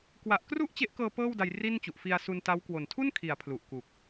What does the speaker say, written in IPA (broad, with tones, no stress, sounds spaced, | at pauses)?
k w a˨˩ ʔ k r u˥˩ ʔ t͡ɕ e˦˥ ʔ k ɤː˧ p ɤː˥˩ w d a˧ j r i˥˩ n t͡ɕ u˨˩ ʔ f i˧ a̯ s u˧ n t a˦˥ w k w o˨˩ n tʰ u˥˩ n kʰ i˩˦ a̯ pʰ l u˨˩ ʔ k u˨˩ k̚